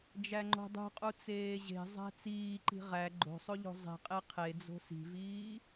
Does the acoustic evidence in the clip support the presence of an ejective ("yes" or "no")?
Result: yes